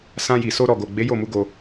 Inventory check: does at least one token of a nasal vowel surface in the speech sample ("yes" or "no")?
yes